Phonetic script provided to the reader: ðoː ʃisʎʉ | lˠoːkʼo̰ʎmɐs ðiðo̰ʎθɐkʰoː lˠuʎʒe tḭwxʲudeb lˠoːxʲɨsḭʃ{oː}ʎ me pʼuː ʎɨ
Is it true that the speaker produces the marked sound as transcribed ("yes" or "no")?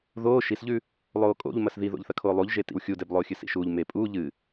no